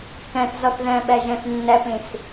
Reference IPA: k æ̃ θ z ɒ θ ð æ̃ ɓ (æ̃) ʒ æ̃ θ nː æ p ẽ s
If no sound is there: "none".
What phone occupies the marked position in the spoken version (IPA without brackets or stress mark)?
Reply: æ